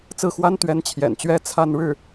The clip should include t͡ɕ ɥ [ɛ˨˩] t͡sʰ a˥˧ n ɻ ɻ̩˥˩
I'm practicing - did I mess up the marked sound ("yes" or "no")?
yes